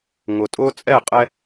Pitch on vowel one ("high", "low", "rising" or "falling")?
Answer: low